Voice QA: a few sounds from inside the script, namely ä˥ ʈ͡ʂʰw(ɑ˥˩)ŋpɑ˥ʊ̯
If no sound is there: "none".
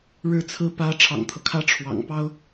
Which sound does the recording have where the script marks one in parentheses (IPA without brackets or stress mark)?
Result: ɑ̰˨˩